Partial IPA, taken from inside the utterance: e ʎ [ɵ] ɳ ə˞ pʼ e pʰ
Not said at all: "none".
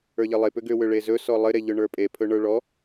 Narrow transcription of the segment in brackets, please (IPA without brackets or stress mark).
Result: ɵ